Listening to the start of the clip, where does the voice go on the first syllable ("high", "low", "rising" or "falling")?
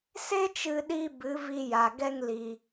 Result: high